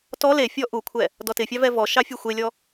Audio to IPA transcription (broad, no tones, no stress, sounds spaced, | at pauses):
t ɔ l e fʲ ɔ ʔ u kʷʰ ɛ | d ɔ t ɪ fʲ ɑ v ɛ v ɔ ʃ ɑ fʲ u xʷ e lʲ ɔ